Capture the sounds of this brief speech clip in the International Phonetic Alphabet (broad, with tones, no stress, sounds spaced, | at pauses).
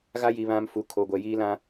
ɣ a˦ j i˨ β ã˦ m f u˨ kʰ o˨ ɡʷ ɛ˨ j iː˦ l ã˦